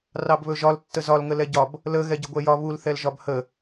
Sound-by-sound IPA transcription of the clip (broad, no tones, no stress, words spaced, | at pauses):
rɑbβɵʒɒl tːəzɒl ŋəlɛɟɒb | lə ɣɛɟəɡʷɛjɒ βul θɛlʒɒbhə